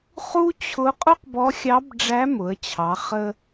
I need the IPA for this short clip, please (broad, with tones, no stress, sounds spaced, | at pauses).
χ u˥ t͡ɕʰ ʊ˧˥ qʼ ʊ˥ q b ɔ˧˥ xʲ ɑ˧˥ b ɖ͡ʐ æ˧˥ m ʊ˩˧ ə̯ t͡ɕʰ ɑ˩˧ χ ə˧